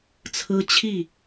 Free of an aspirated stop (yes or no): no